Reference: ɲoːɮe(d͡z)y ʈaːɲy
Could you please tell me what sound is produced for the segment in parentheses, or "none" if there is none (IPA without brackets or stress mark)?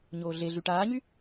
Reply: ɮ